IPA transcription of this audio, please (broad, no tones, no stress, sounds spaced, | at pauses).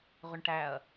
ʁ ʏ ɳ ʈ æ ɐ̯